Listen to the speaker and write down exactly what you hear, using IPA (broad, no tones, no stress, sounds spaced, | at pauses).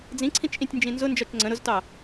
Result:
d͡z ĩ ǀʰ ĩ t͡ʃ ʔ ĩ tʲ n d͡ʒ ĩ n z ʊ n d͡ʒ ɒ t͡ʃ ŋ͡ǀ ə̃ ɾ ʊ z t ɑ